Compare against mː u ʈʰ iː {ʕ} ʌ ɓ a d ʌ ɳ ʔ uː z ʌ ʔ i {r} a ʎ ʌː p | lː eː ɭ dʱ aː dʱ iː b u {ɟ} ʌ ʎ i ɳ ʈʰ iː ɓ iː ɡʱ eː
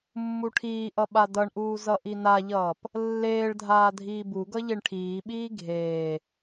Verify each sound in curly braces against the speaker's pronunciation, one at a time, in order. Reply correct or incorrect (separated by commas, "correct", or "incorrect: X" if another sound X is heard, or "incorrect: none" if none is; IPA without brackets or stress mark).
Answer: incorrect: ʔ, incorrect: n, incorrect: ɡ